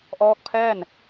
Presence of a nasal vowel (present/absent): absent